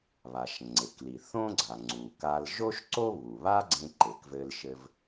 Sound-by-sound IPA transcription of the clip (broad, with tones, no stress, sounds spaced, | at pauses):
β a˩ ʃ ŋ͡ǀ e˩ k l i˩ θ õ˥ ɡ͡ǀ a˩ ŋ͡ǀ u˩ k a˧ l ʒ o˥ ʃ ǀ o˥ β u˩ β a˥ ɡ͡ǀ ẽ˧ ǃ e˩ k v ɘ˧ l ʃ ɘ˧ v